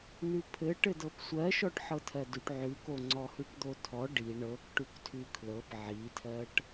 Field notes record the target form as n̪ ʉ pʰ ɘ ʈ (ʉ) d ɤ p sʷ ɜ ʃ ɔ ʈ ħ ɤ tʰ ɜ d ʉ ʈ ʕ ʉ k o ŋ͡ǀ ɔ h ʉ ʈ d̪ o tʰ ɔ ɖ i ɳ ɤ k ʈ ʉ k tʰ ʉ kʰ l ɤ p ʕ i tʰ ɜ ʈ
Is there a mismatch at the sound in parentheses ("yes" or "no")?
yes